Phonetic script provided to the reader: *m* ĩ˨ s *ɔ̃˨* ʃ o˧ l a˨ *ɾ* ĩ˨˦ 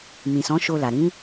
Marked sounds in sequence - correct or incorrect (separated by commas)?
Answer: correct, incorrect, correct